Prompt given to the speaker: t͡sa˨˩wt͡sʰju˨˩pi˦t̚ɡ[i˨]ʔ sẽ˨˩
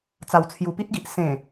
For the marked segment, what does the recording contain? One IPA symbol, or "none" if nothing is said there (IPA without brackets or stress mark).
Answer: i˨